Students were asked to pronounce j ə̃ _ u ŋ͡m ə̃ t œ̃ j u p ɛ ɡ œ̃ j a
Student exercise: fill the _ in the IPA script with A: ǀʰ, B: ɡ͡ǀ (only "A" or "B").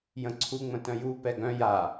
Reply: A